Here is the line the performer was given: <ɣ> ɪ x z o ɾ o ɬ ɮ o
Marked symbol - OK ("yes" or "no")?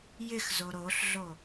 no